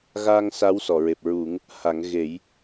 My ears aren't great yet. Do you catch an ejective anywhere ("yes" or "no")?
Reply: no